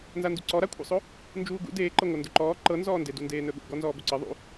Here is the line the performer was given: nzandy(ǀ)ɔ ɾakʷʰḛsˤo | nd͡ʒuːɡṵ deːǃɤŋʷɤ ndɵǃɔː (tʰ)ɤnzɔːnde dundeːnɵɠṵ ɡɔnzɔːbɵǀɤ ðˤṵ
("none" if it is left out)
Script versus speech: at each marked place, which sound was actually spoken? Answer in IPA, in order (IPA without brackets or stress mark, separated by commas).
ǀ, ǃ